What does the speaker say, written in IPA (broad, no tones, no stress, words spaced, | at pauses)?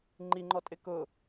ŋ͡ǃiŋ͡ǃɔtʼɪ kʊ